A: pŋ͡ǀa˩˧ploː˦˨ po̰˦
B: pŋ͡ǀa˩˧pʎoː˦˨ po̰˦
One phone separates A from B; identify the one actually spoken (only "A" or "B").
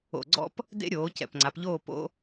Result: B